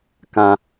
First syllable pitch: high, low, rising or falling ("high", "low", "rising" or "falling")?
high